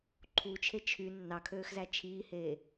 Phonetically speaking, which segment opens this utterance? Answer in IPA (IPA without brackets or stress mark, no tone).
ǃʰ